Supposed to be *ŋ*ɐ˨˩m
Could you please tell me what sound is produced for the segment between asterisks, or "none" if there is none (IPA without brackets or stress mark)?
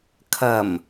kʰ